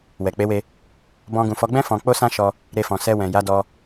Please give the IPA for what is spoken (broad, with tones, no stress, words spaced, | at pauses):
wɛ˨k͡pe˨˦we˧ | bɔ̃˧ɡũ˨fɔ˨˦ ɡ͡bɛ̃˦ fɔ̃˧ k͡po˦sã˦ʃɔ˧ | ɾe˧fɔ̃˨sɛ˧wɛ̃˨ ja˨˦dɔ˧